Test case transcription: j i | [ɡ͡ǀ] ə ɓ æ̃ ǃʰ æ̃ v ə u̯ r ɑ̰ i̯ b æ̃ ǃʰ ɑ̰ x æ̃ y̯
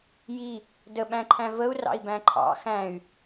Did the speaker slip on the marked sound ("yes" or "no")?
yes